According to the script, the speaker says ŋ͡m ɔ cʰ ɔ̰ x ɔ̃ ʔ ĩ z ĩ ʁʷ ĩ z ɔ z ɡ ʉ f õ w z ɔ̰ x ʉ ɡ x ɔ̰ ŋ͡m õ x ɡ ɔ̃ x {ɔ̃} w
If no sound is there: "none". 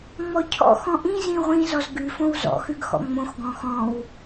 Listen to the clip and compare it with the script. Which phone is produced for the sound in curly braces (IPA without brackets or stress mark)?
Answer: ɔ̃